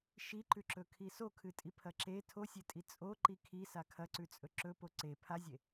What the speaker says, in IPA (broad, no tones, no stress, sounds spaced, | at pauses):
ʃ i ǃ ʉ ǁ ɵ kʰ i s o kʰ ɨ tʼ i pʰ ɐ ǁ e tʰ o sʲ e tʼ i t͡sʼ o ǃ i kʰ i s a kʰ ɐ ǀ ʉ t͡sʼ ɵ ǁ ɵ p o ǀ e pʰ a zʲ e